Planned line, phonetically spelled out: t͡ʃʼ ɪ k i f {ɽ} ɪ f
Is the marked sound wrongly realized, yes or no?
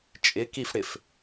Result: no